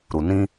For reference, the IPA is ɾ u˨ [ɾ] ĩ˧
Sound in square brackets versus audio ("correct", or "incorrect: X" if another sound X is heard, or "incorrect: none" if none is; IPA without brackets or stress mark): incorrect: n